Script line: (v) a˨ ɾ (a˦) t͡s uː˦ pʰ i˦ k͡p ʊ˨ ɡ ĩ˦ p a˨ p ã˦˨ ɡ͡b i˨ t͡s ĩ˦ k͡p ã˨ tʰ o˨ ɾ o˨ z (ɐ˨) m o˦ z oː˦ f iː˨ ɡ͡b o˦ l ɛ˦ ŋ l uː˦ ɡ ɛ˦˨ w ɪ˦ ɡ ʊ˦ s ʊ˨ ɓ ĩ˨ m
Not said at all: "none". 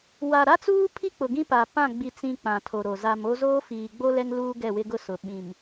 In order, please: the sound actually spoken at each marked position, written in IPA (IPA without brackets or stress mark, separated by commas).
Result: w, a˦, a˨